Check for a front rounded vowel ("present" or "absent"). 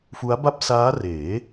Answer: absent